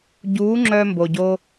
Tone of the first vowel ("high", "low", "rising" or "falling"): rising